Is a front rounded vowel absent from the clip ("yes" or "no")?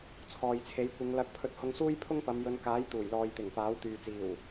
no